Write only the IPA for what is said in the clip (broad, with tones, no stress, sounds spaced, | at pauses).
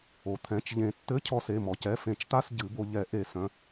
o˩ t̪ʰ ɛ̃˩˧˩ t͡ʃ ʎ ẽ˨˩˦ tː ɘ˧˥˧ cʰ ɔ˧ s e˩˧˩ m ɔ˩ c ɛ˩˧˩ f ẽ˨˩˦ t͡ʃ t̪ a˧˥˧ s ɟ ɨ˨˩˦ b o˧ ʎ ɛ˨˩˦ ʔ e˨˩˦ s œ̃˩˧˩